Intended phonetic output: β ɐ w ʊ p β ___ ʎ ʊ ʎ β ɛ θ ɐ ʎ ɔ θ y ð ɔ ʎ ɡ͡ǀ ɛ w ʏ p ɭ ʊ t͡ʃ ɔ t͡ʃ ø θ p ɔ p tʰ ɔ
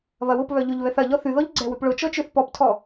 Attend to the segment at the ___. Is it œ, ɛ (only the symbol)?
œ